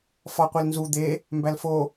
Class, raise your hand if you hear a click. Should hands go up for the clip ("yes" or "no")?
no